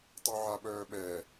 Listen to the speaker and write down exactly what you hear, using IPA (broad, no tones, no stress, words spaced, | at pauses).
tˤœʕaɓœːɓɛ